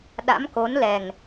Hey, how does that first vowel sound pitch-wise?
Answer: rising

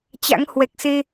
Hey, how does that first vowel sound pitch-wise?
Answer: rising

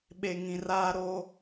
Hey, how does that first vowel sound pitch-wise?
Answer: low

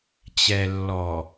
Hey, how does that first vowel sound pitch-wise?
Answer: low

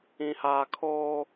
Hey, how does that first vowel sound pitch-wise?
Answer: high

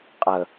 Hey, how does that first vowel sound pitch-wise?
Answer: low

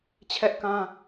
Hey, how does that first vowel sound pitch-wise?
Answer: high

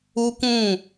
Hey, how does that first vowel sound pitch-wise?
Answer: high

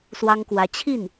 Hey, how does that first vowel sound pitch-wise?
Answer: high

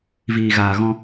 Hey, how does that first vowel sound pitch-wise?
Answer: low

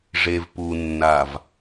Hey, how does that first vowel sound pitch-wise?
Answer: low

